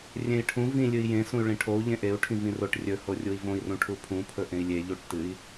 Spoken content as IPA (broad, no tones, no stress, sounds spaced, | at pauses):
rʲ ẽ i̯ ʈʰ ũ v ĩ lʲ ɨ i̯ j ẽ s ũ y̯ ɭ ĩ ʈʰ o u̯ ʎ ẽ ʔ e u̯ ʈʰ ĩ v ĩ r o ʈ rʲ ɵ h o rʲ u i̯ v õ i̯ r ũ ʈʰ u pʰ ũ pʰ ɵ ʔ ẽ i̯ lʲ e ʎ u ʈ t ɨ i̯